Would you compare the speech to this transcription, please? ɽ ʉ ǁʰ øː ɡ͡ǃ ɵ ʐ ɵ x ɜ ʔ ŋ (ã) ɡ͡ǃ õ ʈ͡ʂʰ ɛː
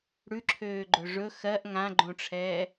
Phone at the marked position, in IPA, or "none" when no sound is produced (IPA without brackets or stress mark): ã